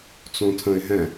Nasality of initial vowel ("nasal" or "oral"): nasal